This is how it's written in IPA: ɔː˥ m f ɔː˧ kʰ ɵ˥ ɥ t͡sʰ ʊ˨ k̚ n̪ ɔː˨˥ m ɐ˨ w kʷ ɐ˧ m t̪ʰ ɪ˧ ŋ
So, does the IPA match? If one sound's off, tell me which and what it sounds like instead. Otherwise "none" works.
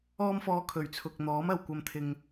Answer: ɵ˥ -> ɵ˨˩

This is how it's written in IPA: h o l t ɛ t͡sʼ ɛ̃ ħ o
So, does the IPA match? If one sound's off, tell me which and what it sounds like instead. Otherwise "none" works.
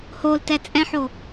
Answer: none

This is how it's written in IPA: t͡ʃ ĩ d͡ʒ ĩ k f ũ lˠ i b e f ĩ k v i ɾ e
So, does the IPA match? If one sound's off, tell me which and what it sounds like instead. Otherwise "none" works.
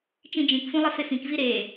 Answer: b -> f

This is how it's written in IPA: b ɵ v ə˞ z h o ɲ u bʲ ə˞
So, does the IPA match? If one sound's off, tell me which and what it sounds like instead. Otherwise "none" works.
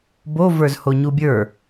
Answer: ɵ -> o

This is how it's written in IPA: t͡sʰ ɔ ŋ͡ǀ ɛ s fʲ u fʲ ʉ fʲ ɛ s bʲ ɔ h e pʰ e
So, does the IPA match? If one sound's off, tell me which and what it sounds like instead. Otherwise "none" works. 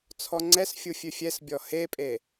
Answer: pʰ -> pʼ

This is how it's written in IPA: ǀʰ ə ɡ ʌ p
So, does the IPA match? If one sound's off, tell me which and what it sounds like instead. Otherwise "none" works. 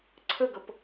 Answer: none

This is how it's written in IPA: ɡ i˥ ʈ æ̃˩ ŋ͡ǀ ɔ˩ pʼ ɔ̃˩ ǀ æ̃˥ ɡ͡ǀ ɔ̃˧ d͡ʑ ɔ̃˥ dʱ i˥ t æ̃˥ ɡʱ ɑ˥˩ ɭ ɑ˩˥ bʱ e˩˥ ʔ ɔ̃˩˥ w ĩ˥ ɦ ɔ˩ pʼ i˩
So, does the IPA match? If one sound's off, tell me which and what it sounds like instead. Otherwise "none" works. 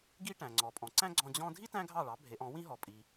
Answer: none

